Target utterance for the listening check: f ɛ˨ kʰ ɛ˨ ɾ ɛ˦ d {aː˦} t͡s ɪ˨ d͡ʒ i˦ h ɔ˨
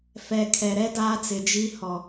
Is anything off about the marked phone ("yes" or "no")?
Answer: no